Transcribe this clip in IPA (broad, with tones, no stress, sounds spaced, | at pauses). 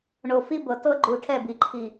ɳ o˨ f i˦ b ɤ˨ t ɤ˦ ɡ͡ǃ u˨ ʈʰ ɛ˦˨ b i˨ ǃʰ i˨